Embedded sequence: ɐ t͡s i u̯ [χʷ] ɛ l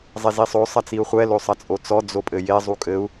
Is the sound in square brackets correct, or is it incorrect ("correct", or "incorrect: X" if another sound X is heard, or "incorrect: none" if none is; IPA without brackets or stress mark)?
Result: correct